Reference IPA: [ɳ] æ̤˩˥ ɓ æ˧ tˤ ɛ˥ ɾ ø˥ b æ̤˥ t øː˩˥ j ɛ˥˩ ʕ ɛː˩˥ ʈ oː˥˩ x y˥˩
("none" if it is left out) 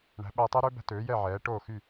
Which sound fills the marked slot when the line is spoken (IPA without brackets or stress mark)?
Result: ɳ